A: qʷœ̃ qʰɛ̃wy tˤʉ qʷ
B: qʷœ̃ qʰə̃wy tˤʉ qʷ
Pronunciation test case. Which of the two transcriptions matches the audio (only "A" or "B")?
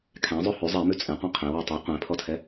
A